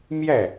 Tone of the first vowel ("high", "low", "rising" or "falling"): falling